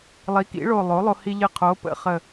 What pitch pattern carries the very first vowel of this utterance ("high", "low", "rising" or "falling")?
rising